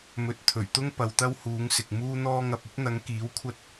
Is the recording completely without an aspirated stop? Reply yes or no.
no